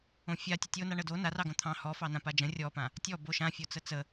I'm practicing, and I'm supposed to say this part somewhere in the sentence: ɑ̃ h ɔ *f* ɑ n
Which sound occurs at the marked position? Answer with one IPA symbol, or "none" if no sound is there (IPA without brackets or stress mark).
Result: f